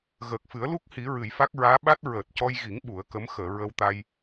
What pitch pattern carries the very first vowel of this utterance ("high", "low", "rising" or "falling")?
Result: low